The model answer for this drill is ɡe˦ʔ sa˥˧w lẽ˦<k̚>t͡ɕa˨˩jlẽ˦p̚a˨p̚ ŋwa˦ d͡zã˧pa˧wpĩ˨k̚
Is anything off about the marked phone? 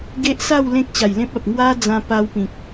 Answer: no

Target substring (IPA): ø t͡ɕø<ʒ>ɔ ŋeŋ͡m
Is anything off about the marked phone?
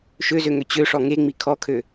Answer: yes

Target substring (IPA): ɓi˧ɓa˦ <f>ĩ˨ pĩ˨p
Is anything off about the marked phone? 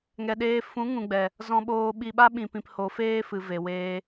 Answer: yes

